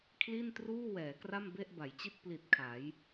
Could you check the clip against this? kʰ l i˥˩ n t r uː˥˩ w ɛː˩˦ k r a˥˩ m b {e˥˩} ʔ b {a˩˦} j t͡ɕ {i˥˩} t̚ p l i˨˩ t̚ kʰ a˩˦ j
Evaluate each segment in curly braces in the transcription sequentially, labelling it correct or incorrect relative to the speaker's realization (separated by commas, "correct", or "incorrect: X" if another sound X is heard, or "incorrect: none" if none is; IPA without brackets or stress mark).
correct, correct, correct